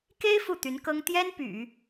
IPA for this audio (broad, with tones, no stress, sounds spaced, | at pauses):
k e˥ ɪ̯ f u˥˩ t̪ y˧˥ n k ɤ˥ ŋ t̪ j ɛ˥ n p y̰˨˩˦